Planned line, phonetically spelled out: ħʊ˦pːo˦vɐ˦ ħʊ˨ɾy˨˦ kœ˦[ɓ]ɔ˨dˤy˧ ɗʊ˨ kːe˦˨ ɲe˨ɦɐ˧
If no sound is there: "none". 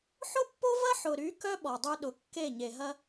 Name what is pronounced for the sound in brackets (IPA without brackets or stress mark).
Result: ɓ